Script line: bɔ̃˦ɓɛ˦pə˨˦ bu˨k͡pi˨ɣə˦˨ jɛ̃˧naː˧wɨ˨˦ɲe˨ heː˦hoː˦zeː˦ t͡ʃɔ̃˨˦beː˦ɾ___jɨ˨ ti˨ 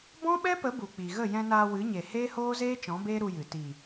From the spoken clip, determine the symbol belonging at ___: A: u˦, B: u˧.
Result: B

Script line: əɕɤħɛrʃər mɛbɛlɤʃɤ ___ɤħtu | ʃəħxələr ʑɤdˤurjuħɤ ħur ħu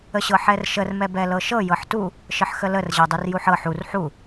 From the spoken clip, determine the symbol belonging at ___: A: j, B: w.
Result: A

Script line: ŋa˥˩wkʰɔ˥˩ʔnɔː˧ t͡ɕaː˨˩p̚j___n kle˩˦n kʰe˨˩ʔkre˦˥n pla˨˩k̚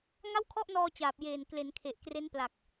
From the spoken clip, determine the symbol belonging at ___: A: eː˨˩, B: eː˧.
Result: A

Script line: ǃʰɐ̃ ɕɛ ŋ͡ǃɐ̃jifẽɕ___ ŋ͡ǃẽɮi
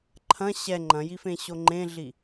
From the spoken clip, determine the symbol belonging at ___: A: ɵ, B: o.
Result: B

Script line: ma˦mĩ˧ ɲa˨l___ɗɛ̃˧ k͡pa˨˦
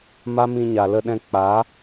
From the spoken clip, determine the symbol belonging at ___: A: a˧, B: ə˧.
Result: B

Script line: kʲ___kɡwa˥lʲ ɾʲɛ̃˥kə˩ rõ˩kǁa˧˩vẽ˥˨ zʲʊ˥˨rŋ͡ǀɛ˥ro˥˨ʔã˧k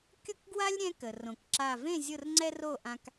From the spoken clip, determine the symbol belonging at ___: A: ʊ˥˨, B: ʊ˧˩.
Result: A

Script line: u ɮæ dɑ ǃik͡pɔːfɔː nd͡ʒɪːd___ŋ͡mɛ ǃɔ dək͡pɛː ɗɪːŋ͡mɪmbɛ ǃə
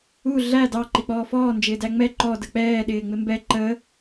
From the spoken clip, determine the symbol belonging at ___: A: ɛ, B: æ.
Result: B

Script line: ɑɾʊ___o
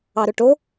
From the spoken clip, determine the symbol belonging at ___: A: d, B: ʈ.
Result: B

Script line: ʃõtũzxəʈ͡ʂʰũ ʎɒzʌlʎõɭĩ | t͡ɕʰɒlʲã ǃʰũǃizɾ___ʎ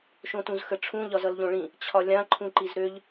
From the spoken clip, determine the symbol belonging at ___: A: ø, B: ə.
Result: A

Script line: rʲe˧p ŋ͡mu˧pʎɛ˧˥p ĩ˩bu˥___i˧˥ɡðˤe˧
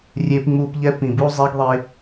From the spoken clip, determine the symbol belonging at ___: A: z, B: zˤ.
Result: B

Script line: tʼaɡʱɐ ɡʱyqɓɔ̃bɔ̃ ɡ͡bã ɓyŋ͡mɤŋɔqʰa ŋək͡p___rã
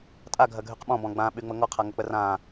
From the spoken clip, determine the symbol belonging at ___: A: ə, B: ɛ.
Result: A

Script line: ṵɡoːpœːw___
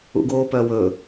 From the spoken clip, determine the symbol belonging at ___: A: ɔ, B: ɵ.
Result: B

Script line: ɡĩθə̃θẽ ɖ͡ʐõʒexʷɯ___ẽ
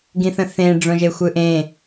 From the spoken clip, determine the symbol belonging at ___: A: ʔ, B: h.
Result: A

